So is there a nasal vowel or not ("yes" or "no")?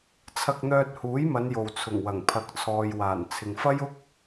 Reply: no